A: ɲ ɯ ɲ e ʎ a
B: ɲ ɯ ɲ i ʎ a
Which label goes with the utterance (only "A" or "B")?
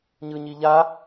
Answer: B